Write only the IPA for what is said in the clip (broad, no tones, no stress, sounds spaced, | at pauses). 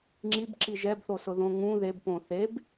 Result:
ŋ͡ǁ i b ǁ i ʒ ɛ b θ o s ʊ ð õ ŋ ũ ð e b p õ θ e b